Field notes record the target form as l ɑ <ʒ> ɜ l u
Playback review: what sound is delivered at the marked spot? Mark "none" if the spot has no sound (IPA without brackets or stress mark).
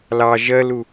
ʒ